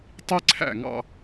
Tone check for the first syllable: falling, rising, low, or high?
high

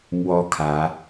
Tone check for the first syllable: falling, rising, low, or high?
high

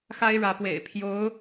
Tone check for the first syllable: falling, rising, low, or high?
high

